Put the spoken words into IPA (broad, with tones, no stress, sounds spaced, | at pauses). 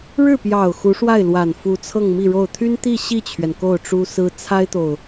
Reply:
ɻ ɻ̩˥˩ p j ɑ˨˩ ʊ̯ x u˧˥ ʂ w a˥˩ ɪ̯ l w a˨˩ n f u˧˥ t͡sʰ ɤ˥˧ ŋ m i˥˧ ɻ o˥˩ ʊ̯ t̪ʰ y˥ n t̪ i˥˧ ɕ i˥˩ t͡ɕʰ ɥ ɛ˩ n k o˥˩ ʊ̯ ʈ͡ʂ u˥ s ɹ̩˥ t͡sʰ a˥ ɪ̯ t̪ o˨ ʊ̯